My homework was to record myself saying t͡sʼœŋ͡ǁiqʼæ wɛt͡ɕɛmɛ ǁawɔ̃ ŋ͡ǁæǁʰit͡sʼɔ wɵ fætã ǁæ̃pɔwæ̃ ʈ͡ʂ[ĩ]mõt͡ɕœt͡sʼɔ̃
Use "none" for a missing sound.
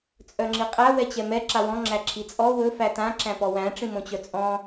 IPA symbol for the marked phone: ĩ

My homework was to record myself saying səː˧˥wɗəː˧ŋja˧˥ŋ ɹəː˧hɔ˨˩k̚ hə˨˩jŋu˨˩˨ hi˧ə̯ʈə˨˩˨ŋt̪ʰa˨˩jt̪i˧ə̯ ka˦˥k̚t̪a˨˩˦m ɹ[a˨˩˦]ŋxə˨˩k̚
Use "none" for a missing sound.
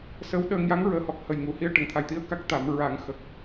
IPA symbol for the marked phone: a˨˩˦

